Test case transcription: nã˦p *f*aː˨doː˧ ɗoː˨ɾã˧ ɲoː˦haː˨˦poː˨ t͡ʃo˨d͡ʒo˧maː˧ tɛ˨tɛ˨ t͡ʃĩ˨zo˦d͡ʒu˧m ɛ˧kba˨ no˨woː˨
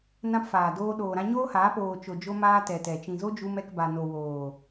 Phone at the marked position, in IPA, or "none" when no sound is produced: f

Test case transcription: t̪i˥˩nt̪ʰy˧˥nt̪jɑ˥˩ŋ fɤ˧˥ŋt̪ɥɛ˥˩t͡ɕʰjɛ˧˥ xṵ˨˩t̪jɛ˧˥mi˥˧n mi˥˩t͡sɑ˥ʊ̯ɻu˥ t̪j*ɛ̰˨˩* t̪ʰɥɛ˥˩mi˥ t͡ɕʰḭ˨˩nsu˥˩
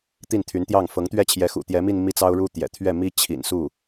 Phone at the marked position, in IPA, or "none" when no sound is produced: ɛ̰˨˩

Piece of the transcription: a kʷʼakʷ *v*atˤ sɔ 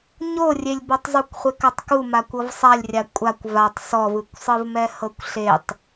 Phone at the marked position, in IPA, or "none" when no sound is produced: v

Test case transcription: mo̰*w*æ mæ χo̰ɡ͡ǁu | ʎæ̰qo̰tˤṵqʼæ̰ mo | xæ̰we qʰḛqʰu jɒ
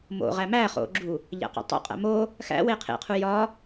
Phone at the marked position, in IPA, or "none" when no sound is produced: ʁ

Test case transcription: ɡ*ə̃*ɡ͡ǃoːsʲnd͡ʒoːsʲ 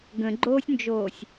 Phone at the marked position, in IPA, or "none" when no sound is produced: ə̃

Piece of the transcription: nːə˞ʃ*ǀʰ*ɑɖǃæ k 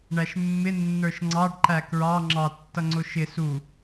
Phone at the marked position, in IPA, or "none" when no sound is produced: ŋ͡ǀ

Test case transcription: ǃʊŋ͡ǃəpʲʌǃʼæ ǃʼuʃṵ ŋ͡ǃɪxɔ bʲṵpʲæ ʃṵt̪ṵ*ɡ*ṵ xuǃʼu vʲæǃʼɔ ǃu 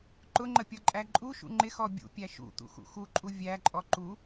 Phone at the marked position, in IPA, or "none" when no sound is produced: x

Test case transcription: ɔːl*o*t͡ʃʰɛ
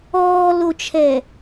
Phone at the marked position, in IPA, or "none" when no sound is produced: o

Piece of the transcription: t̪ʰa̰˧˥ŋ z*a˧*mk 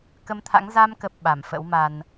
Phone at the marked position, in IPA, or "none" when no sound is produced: a˧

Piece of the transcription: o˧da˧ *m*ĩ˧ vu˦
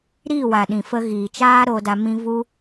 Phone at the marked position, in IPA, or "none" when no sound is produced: m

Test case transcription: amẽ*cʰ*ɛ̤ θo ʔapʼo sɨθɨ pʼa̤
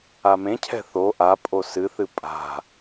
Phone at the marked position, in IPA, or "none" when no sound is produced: cʰ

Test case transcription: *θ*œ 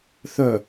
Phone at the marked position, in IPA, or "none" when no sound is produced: θ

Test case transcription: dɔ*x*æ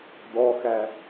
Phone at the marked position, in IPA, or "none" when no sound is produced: x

